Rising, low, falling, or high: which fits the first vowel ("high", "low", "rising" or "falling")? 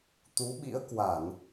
rising